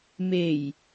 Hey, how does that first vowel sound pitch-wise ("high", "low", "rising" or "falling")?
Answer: low